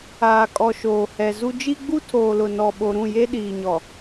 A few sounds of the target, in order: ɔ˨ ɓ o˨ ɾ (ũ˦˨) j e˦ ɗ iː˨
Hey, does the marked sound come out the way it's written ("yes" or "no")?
yes